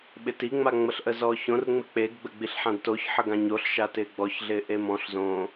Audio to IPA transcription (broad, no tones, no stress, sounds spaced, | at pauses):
ɓ ɪ t i ŋ͡m a ŋ͡m ə ɬ ʔ ə z ɔː ç õ r ŋ͡m ɪ k͡p e ɡ ɡ͡b ə ɡ͡b i ɬ ħ ã d t o ç ħ ə ɡ ã ɲ o ɬ ʃ a t ɪː ɡ͡b ɔ ç ɮ ɪː ʔ e m ɔ̃ ɬ z õː